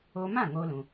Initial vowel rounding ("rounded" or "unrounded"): rounded